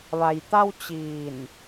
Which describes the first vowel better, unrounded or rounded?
unrounded